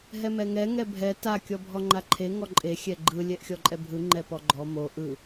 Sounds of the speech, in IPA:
ɦ ɛ m ɛ ŋ ɛ ŋ ɛ bʱ ɛ t a kʲ ɔ bʱ ɔ ŋ͡ǃ a ǃʰ e ŋ ɔ ǃʼ e xʲ ɛ ɡ͡ǃ ɯ lʲ ɛ ʔ xʲ ɔ ǃʼ ɛ bʱ ɯ ŋ͡ǃ ɛ p ɔ ɡ͡ǃ ɔ m o ʔ ɯ

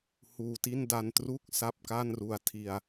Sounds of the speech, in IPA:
h uː˧ t i˥˩ n d a˧ n t r u˥˩ k̚ s a˥˩ p̚ k a˥˩ n r u˧ a̯ tʰ i˧ a̯

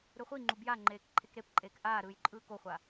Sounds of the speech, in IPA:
ɾ ɯ χʷ i ŋ͡ǃ u b j a ŋ͡ǃ eː k ǃʰ e k ɾ e p ǃʼ eː k ʔ aː ɾ ɯː j ǃʼ ɯː k o χʷ a

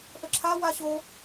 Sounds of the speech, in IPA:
ʔ ə ǁʰ a w a ɕ o

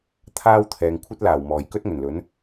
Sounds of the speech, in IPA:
t̪ʰ aː˥ w t̪ʰ ɛː˨ ŋ kʷʰ ɐ˥ t̚ l aː˨˩ w m ɔː˨˩ j k ɵ˥ t̚ ŋ ɵ˨˩ n l ɵ˨˥ n

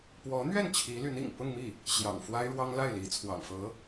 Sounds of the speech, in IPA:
p w ɔ˧˥ n̪ ɥ ɛ˥˩ n t͡ɕʰ i˧˥ l y˧˥ n ḭ˨˩ ŋ p ʊ˥˧ ŋ m i˥˩ | ɕ j ɑ̰˨˩ ŋ f w a˥ ɪ̯ ɻ w ɑ˥ ŋ l a˥˩ ɪ̯ l i˧˥ t͡sʰ w ɑ̰˨˩ ŋ f ɤ˧˥

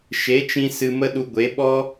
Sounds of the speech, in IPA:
ʃ e˨˦ t͡ʃ ĩ˧ s ɨ˧ m ə˦ ɗ u˧ ɡʷ e˨˦ ɓ ɔ˦

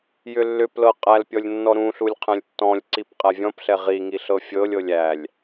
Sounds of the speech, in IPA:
j ʏ lː ʏ p l ɤ qʼ æ l pʲ ɔ lʲ nː ɔ ɾ ũ ɬ u lʲ qʰ ɛ̃ lʲ tː ɔ̃ lʲ ǀ i p qʼ æ vʲ ɔ̃ p ɬ ɛ ʁ i ŋ i ɬ ɤ fʲ ɤ lʲ ɤ lʲ æ lʲ

